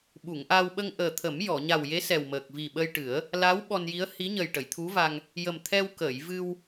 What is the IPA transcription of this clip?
ɓu˨˩˨ŋʔa˧w ɓə˧ŋʔəː˨˩t̪ʰə˨˩˦m jɔ˨˩˨ɲa˨˩wje˧˥ sɛ˨˩wməː˨˩k̚ vi˨˩ɓə˧jʈɨ˨˩˦ə̯ | la˧˥w ɓɔ˧nji˧˥ə̯ hi˧˥ɲə˨˩j ʈə˨˩˨jt̪ʰu˧˥va˧ŋ | jə˨˩m t̪ʰɛ˧wkəː˨˩˨j vɨ˧w

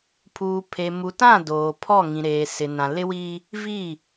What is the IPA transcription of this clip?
pʰuː˨pʰe˨mu˨tã˦˨ doː˨pʰɔ˦˨ ŋĩ˨ɾeː˨sɪ˨ nã˨lɪ˦wi˦ | vi˦˨

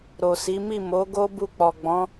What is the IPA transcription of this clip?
ɾo˨si˨˦mi˦˨ mo˨˦ɡo˦ bu˧k͡pɔ˨ɡ͡bɔ̃˨˦

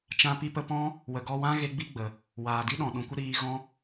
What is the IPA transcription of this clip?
t͡ʃã˧ pi˧pə˧pɔ̃˦ | wə˨ɡɔ˧wã˦ ɣe˦ɡ͡bi˦ɡ͡bə˨ | waː˨ di˦ɗɔ̃˨ ɗũ˨kʷə˧ ɾiː˧ɣɔ̃˦

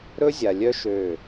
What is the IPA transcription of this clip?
ɾɵ˦zʲa˨lʲœ˦ ʃø˦˨

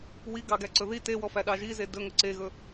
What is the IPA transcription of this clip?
wiɡɑɡæǀɵ ði tewɔfæɗɑ ʒize dɵŋɵ ǀeɣɵ

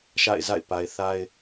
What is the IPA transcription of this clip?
ʃa̰˦˨ɪ̯za̰˦˨ɪ̯ pa˨ɪ̯ θa˦ɪ̯

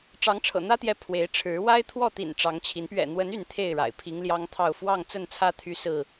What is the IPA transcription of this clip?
ʈ͡ʂɑ˨˦ŋʈ͡ʂʰɤ̰˨˩n̪ä˦t̪jɛ˨˦ pʰwe˨˦ɪ̯ʈ͡ʂʰɻ̩˨˦ wa˦ɪ̯t̪ʰwɔ˥˨t̪ḭ˨˩n ʈ͡ʂɑ˨˦ŋt͡ɕʰi˨˦n pɥɛ̰˨˩n̪wə˨˦n y˥˨nt̪ʰe˥˨ɪ̯ɻa̰˨˩ɪ̯ pʰi˨˦ŋljɑ˦ŋt̪ʰɑ˥˨ʊ̯ fwɑ˥˨ŋt͡sə˥˨nt͡sʰä˦ t̪ʰy˦sɹ̩˥˨

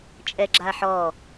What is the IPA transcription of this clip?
t͡ʃʼɛɡ͡ǁaħɔ

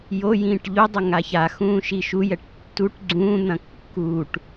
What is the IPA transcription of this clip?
jojĩːʈ ʎudˤɐ ŋaçaxũː ʃiʃujɛʈ tːuʈ ɡ͡ǀũːn̪ɐ̃ kːuːʈ

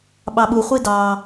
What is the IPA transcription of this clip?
ɓɑɓu χʷidɑ

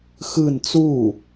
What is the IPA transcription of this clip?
xɯn t͡su

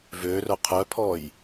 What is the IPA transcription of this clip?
vø rœqʰœpʰɔj

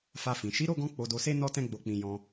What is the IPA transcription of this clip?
fa˧fĩ˨ ʃi˨˦ɾo˦˨ɡɔ̃˧ k͡po˧do˧se˦ nɔ˦tɛ̃˦ɡ͡bo˧k͡pĩ˧ jɔ̃˧

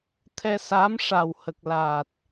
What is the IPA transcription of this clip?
t̪ʰɛ˧saː˧˥m ʂa˨˩whə˨˩k̚la˨˩t̚

